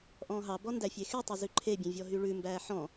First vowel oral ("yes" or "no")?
no